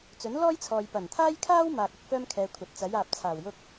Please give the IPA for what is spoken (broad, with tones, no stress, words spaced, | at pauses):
t͡sɵ˨˥nlɔː˥jt͡sʰɔː˨j pɐ˨˩nt̪ʰaː˥jkʰaː˥w maː˨k̚ ɐ˥k̚fœː˥mkʰɛː˨˧ kʷʰɐ˨t̚ t͡sɐ˨˥jaː˨p̚t͡sʰaː˨˩wjʊ˥k̚